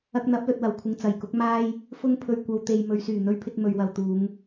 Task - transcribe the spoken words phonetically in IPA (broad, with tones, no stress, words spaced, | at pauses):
ɐ˧k̚n̪ɐ˨˥p̚lɵ˨t̚ wɐ˨˩wkʷʰɪ˨ŋ t͡sɐ˨jkʊ˨˥k̚ maː˥j | fʊ˥ŋpʰɵ˧ɥ kʷɐ˧wt̪e˧j mɵ˨ɥsyː˨˩n̪ɵ˧ɥpʰɪ˧k̚ mɵ˨ɥwɐ˨w t̪uː˨˧ŋ